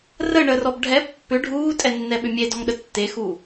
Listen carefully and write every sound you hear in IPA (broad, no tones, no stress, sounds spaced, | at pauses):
r ə ɳ ə r ɔ b ɖʱ ɛ pː ʏ ɖʱ uː tʼ ɛ nː ɛ ɓ ʏ mʲ e d ɔ ŋ ɗ ə tː e x u